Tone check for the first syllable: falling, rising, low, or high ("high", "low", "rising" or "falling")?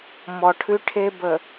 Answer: low